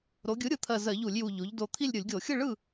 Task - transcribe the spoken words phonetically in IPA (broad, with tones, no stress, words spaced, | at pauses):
ɾo˩˧ɡʲɯ˩˥ɾʲɯ˩˧t̪ʰɜ˨˩ zɜ˧˩˧ʎu˧˩˧lʲju˨˩ ʎo˩˧ʎ do˨˩t̪ʰi˥˨lʲ ɾʲɯ˧˩˧lʲɡʲo˧˩˧ xʲɯ˥˨ɭɯ˥˨